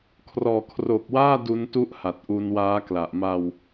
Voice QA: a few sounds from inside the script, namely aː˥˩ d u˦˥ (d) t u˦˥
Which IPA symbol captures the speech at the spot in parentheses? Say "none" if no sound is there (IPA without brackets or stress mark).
n